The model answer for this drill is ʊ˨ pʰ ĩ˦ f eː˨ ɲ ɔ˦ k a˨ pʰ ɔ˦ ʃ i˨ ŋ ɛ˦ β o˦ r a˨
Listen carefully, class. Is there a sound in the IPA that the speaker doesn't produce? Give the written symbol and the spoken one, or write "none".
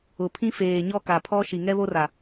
none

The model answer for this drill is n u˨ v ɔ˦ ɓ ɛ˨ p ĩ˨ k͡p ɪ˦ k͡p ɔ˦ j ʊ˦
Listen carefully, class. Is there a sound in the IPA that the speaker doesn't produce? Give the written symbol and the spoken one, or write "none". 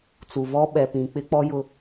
n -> t͡s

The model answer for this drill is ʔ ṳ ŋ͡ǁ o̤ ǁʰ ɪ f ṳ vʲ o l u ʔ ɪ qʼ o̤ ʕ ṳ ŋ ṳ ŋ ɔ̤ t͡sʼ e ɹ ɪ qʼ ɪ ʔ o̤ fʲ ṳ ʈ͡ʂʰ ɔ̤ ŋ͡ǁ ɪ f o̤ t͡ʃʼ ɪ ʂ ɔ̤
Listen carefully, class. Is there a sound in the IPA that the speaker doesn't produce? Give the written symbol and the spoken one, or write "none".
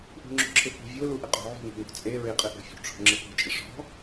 none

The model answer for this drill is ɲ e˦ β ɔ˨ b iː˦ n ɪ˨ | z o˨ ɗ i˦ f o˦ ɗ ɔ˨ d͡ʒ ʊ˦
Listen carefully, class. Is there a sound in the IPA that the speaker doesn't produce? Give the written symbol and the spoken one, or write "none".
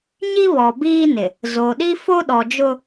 e˦ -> i˦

